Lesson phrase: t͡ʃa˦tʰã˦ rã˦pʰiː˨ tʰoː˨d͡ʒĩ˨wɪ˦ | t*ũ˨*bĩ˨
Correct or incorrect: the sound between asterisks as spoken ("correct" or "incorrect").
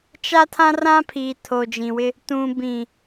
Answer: correct